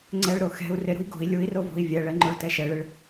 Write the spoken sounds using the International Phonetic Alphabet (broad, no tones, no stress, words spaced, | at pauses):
ŋ͡ǀɛɭɾo xɛ̤u̯ rɪɾṳi̯ ɡo̤i̯ lʲui̯rovo̤i̯ vʲɛɭɛŋ͡ǃoɭ tɛʃɛɭɪɭ